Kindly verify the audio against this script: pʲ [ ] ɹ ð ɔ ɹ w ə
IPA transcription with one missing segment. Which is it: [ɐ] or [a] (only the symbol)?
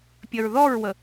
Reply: ɐ